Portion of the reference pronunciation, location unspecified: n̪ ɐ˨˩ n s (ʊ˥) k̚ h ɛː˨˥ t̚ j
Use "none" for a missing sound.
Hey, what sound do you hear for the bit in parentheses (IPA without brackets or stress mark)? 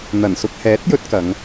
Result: ʊ˧